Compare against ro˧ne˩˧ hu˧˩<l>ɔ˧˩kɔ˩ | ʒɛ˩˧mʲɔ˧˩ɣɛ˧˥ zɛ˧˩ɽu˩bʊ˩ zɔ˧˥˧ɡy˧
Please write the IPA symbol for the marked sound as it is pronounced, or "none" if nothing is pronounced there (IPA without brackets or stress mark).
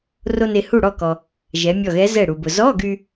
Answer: ɽ